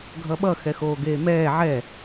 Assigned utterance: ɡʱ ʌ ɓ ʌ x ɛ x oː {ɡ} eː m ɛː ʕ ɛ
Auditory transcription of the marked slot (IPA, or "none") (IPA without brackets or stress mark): ɡ